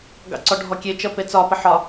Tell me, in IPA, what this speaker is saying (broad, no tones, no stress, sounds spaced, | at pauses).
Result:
ɡ ɑ̰ ǀ ɔ ɖʱ ɔ kʲ e t͡ʃ ʌ p e t͡s ɒ p ə ħ ɒ